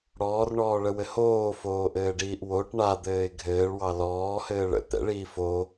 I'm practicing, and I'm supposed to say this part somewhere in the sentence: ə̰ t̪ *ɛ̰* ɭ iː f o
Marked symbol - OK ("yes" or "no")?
yes